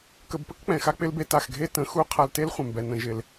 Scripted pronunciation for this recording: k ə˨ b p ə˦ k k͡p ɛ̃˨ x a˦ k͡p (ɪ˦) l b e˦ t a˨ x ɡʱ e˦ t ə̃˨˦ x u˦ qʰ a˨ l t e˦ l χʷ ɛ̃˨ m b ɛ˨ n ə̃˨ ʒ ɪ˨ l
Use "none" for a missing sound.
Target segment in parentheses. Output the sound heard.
ɪ˦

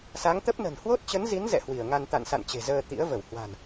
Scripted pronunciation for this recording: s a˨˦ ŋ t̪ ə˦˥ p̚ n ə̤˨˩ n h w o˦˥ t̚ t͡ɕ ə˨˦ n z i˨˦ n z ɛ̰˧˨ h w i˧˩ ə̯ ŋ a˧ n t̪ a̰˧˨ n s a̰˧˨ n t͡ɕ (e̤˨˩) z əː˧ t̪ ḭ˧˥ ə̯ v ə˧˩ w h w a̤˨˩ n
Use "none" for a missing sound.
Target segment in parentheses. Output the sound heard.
e̤˨˩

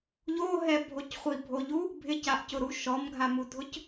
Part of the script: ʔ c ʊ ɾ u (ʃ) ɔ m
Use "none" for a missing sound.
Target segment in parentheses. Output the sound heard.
ʃ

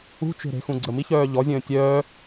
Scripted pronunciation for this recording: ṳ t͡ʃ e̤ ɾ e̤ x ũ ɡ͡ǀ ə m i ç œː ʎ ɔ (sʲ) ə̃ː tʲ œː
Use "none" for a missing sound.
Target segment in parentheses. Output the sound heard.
zʲ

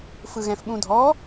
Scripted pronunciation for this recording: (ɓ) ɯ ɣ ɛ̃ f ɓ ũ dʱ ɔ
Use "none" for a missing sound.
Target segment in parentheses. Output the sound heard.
f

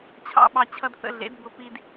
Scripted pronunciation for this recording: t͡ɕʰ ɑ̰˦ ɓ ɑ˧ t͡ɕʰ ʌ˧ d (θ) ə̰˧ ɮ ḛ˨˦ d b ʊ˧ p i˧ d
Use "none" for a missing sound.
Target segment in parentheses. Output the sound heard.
θ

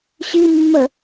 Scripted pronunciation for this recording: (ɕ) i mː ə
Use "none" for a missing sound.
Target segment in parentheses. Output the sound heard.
ɕ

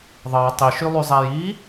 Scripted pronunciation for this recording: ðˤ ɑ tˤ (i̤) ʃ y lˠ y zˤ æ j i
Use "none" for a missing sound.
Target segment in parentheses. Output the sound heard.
i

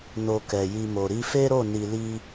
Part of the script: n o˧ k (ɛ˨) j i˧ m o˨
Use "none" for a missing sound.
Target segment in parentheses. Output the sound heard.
ɛ˨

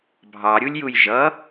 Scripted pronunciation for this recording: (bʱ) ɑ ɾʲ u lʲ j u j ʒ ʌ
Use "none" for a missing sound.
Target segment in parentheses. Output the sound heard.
bʱ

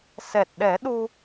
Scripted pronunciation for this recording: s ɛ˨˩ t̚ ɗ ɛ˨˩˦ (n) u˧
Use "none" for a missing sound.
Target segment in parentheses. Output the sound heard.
ɗ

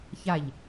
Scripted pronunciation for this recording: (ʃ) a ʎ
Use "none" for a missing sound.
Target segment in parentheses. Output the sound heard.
ç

